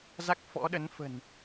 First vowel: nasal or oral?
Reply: oral